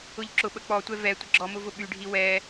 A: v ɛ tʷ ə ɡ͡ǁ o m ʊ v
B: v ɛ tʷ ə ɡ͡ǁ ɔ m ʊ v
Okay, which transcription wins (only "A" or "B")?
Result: B